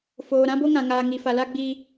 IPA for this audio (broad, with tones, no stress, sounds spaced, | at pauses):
f oː˨ ɾ ã˦ b o˦ ŋ ã˨ ŋ aː˨ ŋ i˨ f a˨ l a˦ ɡ͡b iː˦